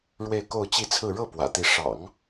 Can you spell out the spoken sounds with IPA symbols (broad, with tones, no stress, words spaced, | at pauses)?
ɻwe˥˧ɪ̯ko˥˧ʊ̯t͡ɕi˥˧t͡sʰɹ̩˥˧ ɻɤ˥˩ pwä̰˨˩t̪i˧˥ ʂɑ̰˨˩˦ŋ